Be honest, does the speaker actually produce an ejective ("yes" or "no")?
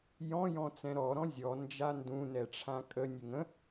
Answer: yes